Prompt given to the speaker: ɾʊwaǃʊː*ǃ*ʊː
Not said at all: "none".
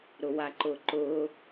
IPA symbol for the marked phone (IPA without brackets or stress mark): ǃ